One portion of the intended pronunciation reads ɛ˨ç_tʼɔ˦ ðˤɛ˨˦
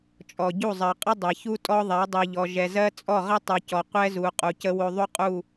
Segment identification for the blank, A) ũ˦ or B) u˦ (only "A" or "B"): B